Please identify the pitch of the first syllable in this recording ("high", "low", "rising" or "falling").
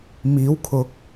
rising